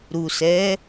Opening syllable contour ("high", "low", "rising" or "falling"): low